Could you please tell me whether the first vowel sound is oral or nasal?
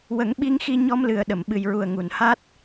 oral